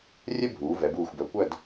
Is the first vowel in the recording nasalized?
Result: no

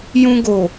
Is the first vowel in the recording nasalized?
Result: yes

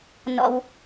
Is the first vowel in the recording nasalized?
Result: no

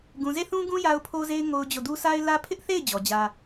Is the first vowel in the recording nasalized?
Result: yes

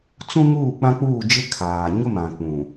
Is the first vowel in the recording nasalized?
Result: yes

